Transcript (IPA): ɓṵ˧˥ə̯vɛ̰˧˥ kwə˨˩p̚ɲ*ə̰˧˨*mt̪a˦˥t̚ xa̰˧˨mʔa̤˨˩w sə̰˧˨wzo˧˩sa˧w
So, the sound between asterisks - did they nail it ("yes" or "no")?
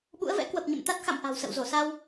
yes